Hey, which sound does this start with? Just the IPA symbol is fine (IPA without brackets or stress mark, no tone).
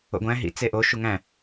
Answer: o̰